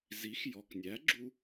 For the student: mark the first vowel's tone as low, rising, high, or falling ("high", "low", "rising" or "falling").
rising